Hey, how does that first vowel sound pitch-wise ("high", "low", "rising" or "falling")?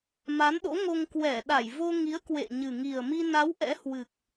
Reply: rising